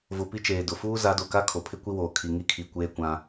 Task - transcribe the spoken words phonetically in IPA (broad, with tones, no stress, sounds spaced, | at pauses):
v ʊ˨ p i˦ t͡ʃ eː˨ d ʊ˨ f uː˦ z a˨˦ d o˨ k a˦ kʰ o˨ pʰ ɪ˦ kʷ i˦ w oː˨ kʰ i˨ ŋ i˦ kʰ i˨ kʷ eː˦ kʷ ã˦